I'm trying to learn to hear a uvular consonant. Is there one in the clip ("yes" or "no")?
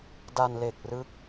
no